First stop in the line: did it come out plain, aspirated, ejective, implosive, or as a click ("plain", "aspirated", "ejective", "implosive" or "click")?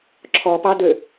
click